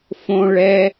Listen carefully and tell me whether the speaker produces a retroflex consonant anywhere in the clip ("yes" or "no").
yes